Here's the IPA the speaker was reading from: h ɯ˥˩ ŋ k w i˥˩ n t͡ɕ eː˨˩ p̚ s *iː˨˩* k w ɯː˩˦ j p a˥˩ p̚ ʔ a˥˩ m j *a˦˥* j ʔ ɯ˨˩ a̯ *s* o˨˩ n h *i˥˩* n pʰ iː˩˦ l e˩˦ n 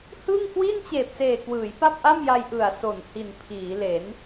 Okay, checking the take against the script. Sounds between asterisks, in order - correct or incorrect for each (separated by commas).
incorrect, incorrect, correct, incorrect